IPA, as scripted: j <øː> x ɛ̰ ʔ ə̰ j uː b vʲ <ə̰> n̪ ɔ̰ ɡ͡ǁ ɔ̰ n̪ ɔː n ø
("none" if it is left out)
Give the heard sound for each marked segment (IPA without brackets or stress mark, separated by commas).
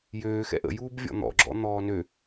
øː, ɔ̰